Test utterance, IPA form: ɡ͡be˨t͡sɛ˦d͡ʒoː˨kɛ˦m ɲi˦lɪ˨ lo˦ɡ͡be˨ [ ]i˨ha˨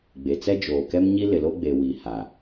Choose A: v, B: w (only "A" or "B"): B